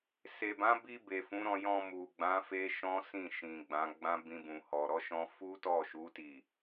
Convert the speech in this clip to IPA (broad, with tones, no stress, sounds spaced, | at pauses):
s e˨ b ã˨˦ b i˧ b e˨ f ũ˨˦ ɾ ɔ̃˧ j ɔ̃˧ m u˨ ɡ͡b ã˨˦ f e˦ ʃ ɔ̃˦ s ĩ˦˨ ʃ ĩ˨ ɡ͡b ã˨˦ ɡ͡b ã˦ b ĩ˧ b ũ˨ h ɔ˨ ɾ ɔ˨˦ ʃ ɔ̃˧ f u˦ t ɔ˦˨ ʃ u˨˦ t i˦˨